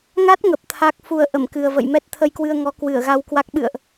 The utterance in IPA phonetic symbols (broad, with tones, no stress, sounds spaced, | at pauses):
ŋ a˦˥ t̚ ŋ ə˨˩ p̚ t̪ʰ a˦˥ k̚ f u˧ ə̯ ʔ ə˧˩ m k ɨ˨˩ ə̯ v ə̰˧˨ j m ɛ˦˥ t̚ t̪ʰ ə˧ j k w ɨ˧ ə̯ ŋ ɔ˨˦ k w ɨ˧˩ ə̯ ɣ a˧ w k w a˦˥ k̚ ɓ ɨ̰˧˨ ə̯ ʔ